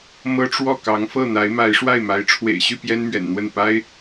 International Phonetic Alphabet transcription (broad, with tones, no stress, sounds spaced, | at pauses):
m ɤ˥ ʈ͡ʂ w ɔ˥˩ k ɑ˧˥ ŋ f ɤ˥˩ n̪ a˧˥ ɪ̯ m a˧˥ ɪ̯ ʂ w a˥˩ ɪ̯ m a˧˥ ɪ̯ ʈ͡ʂʰ w ḛ˨˩ ɪ̯ ɕ y˥˩ p j ɛ˥ n m ɥ ɛ̰˨˩ n n̪ w ə˥˩ n p a˥ ɪ̯